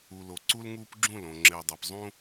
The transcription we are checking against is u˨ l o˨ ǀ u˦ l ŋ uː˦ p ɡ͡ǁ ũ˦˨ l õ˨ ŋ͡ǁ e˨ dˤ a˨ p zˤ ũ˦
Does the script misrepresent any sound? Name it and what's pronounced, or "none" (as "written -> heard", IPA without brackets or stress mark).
none